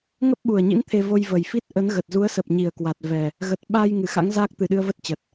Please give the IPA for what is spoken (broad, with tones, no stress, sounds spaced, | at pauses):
ŋ ə˦˥ p̚ ɓ u˨˩ ə̯ ɲ ḭ˧˥ n t̪ʰ e˧ v o˧ j v ə˨˩ j f i˦˥ t̚ ʔ ə˨˦ n ɣ ə˨˩ t̚ z u˨˦ ə̯ s ə˨˩ p̚ ɲ i˧˩ ə̯ k w a˨˩ t̚ v ɛ˨˩ | ɣ ə˨˩ t̚ ɓ a˧ j ŋ ɨ˧˩ x a̰˧˥ ŋ z aː˦˥ k̚ t̪ ɨ˨˩ ɗ ɨ˧ ə̯ v ə˦˥ t̚ t͡ɕ ə˨˩ t̚